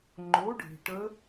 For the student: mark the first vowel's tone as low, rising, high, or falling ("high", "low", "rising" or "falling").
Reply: rising